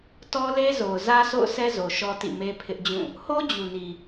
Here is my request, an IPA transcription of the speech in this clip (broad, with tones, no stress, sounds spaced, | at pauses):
t ɔ˦ l e˦ z o˨ ʊ̯ z ä˦ s o̰˦˨ ʊ̯ sʰ ɛ˦ z o˨ ʃ ɔ˦ t ḭ˦˨ m e˦ pʰ ɪ˦ ʔ d͡ʑ ũ˦˨ | h o˦ d͡ʑ u˨ n i˨